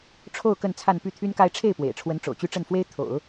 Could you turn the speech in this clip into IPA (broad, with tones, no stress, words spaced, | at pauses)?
ʈ͡ʂʰo˥˧ʊ̯ kə˥˧nt͡sʰa˥˧n py˥˩ t̪ʰy˥nka˥ɪ̯ ʈ͡ʂʰe˥˩ɪ̯pwḛ˨˩ɪ̯ʈ͡ʂʰwə˧˥n ʈ͡ʂo̰˨˩ʊ̯t͡ɕy˥ʈ͡ʂə˥˩nfwe˥ɪ̯ t̪ʰo̰˨˩˦ʊ̯